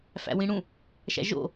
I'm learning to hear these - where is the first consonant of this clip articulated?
lips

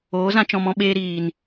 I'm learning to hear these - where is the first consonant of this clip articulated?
tongue tip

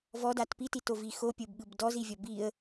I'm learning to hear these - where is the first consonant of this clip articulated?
lips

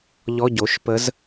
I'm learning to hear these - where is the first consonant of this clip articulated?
palate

